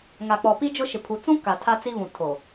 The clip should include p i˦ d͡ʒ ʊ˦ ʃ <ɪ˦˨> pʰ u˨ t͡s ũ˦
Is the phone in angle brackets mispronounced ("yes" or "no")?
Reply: yes